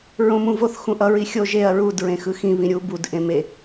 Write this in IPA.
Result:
ɹ õ m ũ v o θ x ũ ʔ ʌ ɹ i xʲ o ʒ e ɐ̯ ɹ u d ɹ ẽ x ɯ x ĩ β ĩ ɾʲ u b u d ʔ ẽ m e

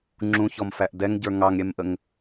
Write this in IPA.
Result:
ŋ͡ǁ ũ ç ɔ m f æ ʔ d ɛ ŋ ɟ ə˞ ŋ ɑ ŋ ɾʲ ɛ m ʔ ə ŋ

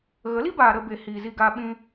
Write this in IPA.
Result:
ɣ ə˨˦ l i˦ b aː˨ ɾ ə˧ b e˨ h iː˨ z i˧ ɡ aː˧ ɓ ĩ˧

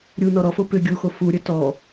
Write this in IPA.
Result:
ɾʲ u n ɔ ɾ ɔ f o p ʏ ɡʲ u x o f u ɾʲ ə t ɔ

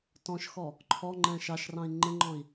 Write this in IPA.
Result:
t ɔ̃ ʃ x ɔ | ǃʰ ɔ ŋ͡ǃ ɛ̃ ʃ ɑ ʃ r ɑ̃ i̯ ŋ͡ǃ ɪ ŋ͡ǃ ɔ̃ i̯

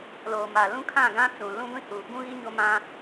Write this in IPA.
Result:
l oː˨ m a˨ l ũ˦ kʰ ã˦˨ ɡ ã˦ t͡s ũ˨ l ũ˦ ɡʷ ĩ˦ h uː˨ b ũ˦ ɣ i˦ ɲ o˦ m ã˦

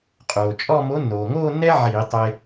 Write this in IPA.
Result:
qʼ oː˩ t͡ʃʼ ɔ˥˧ m o˨˥ nː oː˩ ŋ oː˥˧ nː ɛ˥ ʕ iː˧˩˧ tˤ e˧

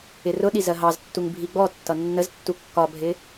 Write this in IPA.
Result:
ɪ r ʊ ɗ i z ɜ ɦ ɑ z tː u ŋ bʱ i ɡ͡b ɔ tː ʌ nː ə z tː u kː ɒ bʱ ɪ

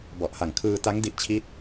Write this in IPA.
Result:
b ɔ˨˩ ʔ h a˨˩ ŋ kʰ ɯː˧ t a˦˥ ŋ d i˦˥ ʔ t͡ɕʰ i˦˥ t̚

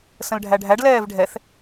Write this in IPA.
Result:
s ə̃ l ɖʱ æ ɖʱ æ ɖ l ɛː v ɖʱ ɛ θ

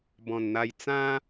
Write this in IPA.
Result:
b ɔ̃˨˩ n n̪ a˧ j t͡s ã˦

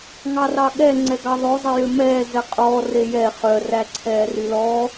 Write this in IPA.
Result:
ŋ ɑ r ɑ ɠ ɛ ŋ͡ǀ ɛ ɡ ɑ ðˤ ɵ zˤ e j ø m ɛː z ɛ qʼ ɔː r e j ɛ χ œ r æ ǀʰ ɛː r y l ɔ

